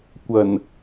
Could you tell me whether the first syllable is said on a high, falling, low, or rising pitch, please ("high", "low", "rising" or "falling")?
low